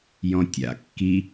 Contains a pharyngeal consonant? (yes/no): no